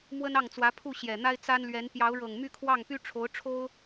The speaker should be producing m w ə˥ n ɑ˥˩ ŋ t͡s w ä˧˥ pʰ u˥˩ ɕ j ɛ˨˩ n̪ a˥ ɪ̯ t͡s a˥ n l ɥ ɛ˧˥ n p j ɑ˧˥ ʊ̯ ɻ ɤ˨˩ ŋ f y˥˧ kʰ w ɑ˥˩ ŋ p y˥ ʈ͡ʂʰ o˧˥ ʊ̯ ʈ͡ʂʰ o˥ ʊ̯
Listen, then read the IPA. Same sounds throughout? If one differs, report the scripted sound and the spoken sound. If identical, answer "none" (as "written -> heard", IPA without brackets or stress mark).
f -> m